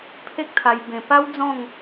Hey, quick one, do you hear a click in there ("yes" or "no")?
no